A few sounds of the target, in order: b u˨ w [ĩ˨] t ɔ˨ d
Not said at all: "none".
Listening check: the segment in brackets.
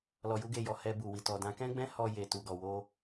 i˨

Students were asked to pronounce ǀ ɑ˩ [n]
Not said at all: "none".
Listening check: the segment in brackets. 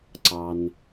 n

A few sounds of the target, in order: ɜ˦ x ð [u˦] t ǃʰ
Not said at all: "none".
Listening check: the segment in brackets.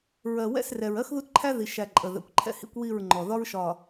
u˦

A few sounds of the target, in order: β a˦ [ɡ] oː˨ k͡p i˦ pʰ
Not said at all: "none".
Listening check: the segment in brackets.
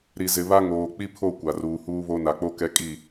ŋ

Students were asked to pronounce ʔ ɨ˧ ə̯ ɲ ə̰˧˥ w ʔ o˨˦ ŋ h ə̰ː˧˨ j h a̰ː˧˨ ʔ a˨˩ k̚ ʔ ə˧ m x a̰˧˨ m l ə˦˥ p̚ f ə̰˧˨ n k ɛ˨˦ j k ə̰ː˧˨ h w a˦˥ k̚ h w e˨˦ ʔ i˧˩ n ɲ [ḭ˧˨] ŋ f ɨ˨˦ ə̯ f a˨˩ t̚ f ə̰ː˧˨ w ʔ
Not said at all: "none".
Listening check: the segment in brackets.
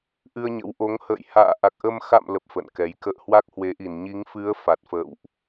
i˨˦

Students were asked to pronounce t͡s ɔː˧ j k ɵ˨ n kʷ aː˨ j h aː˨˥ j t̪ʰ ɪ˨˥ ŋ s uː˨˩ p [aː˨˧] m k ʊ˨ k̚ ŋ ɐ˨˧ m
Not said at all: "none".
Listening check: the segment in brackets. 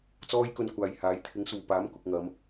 aː˨˥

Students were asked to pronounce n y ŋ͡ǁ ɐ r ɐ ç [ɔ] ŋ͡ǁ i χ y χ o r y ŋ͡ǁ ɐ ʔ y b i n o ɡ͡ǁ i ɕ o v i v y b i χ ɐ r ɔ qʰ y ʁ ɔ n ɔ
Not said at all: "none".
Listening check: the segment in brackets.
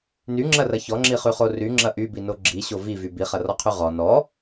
ɔ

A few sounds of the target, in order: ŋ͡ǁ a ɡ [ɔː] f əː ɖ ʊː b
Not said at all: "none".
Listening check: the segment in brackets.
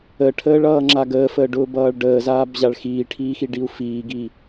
əː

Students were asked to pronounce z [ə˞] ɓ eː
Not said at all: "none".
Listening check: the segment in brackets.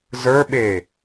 ə˞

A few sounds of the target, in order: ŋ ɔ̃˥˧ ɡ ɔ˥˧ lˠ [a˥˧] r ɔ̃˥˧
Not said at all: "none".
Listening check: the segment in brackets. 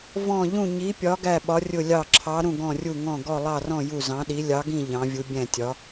ɑ˥˧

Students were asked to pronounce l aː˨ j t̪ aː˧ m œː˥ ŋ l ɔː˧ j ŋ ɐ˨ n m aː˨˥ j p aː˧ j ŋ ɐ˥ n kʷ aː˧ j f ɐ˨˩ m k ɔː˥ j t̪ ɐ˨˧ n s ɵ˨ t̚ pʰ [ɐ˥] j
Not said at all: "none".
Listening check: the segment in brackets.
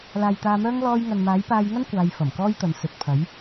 ɐ˨˥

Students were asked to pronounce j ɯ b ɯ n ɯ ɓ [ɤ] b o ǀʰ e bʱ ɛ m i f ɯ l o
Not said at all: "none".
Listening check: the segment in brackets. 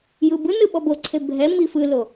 ɔ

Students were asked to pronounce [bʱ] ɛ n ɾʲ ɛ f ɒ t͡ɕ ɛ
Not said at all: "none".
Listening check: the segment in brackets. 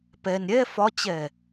p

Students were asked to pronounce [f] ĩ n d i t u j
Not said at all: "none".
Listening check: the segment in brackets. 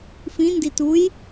f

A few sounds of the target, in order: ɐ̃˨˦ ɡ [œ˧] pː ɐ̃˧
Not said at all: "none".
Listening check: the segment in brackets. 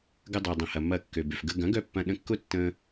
œ˧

